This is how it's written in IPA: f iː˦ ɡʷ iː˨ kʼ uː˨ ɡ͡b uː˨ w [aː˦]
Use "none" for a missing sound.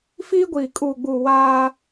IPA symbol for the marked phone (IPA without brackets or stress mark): aː˦